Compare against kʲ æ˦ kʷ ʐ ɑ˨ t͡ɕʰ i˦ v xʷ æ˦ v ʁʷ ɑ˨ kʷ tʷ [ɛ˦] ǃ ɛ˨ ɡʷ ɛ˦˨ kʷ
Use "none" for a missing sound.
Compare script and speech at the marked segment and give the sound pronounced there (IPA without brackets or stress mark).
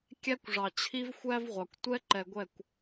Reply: ɛ˦